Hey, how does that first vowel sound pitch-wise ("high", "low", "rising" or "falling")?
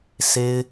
high